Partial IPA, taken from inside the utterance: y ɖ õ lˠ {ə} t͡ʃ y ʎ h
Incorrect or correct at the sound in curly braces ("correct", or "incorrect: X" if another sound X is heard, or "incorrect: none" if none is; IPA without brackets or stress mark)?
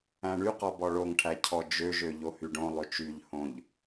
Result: incorrect: ø